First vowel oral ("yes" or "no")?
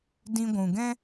no